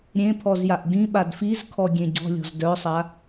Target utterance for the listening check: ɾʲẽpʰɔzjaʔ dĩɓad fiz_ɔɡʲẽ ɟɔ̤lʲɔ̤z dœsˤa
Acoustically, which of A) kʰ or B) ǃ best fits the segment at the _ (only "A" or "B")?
A